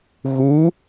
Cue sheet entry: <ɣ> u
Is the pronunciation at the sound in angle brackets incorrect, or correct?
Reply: correct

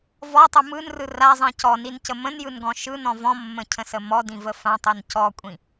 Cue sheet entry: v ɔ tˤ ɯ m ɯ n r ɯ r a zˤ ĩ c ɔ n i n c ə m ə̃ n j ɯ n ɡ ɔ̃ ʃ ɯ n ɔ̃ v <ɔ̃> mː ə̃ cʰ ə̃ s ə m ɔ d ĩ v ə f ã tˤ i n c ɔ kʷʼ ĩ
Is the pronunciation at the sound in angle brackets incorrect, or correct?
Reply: correct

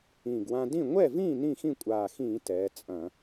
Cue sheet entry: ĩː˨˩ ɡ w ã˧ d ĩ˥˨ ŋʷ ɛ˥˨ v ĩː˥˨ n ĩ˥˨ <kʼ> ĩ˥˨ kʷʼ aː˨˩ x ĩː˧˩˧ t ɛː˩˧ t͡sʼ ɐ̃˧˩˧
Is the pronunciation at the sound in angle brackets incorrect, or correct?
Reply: incorrect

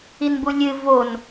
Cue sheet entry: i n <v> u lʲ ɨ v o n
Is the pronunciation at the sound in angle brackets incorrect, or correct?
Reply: incorrect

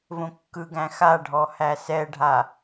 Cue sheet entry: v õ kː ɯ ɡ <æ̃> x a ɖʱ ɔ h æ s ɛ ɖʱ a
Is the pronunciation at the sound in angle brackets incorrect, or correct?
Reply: correct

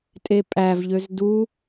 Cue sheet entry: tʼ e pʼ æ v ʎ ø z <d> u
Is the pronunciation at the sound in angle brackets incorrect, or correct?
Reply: correct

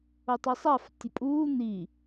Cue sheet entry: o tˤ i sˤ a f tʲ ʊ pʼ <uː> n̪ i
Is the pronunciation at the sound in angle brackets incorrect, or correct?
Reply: correct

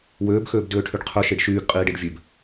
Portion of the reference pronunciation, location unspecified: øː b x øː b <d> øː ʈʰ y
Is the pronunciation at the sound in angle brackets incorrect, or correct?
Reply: correct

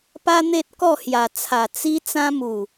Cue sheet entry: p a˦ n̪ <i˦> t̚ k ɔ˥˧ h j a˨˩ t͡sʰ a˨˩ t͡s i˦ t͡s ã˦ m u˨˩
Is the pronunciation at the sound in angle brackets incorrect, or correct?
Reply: incorrect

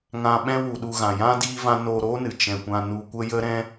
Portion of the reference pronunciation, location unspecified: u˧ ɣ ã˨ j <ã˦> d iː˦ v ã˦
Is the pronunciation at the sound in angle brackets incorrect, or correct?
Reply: correct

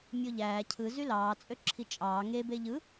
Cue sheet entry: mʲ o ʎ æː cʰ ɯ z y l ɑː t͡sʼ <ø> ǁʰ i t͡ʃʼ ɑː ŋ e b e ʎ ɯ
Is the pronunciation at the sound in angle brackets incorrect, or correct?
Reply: correct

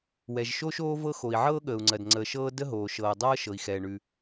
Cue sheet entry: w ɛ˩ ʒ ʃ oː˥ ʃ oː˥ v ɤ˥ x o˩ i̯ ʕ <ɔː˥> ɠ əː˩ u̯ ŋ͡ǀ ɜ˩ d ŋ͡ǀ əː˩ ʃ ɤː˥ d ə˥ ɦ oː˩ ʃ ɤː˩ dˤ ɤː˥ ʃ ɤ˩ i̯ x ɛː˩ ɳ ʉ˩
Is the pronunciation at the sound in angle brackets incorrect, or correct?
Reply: incorrect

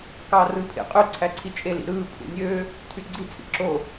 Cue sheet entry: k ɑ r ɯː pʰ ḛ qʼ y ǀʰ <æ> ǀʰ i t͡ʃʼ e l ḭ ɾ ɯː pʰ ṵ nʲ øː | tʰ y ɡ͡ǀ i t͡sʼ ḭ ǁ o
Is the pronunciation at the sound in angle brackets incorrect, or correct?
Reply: correct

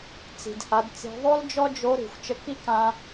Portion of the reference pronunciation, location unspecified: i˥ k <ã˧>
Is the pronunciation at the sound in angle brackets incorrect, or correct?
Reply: correct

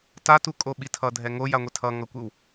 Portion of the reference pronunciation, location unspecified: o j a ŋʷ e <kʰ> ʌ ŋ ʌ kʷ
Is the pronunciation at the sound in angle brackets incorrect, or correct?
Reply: incorrect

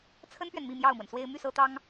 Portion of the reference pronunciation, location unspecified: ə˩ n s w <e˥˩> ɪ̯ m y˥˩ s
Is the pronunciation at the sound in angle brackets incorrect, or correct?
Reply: incorrect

